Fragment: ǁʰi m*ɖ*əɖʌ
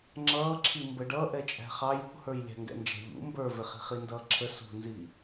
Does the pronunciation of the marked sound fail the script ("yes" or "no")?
yes